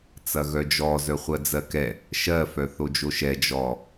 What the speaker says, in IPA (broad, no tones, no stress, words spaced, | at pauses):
t͡sɐɣœd͡ʒɔ zœχʷɜd͡zɜkɛ | ʃɜfœ θod͡ʒoʃɛ d͡ʒɔ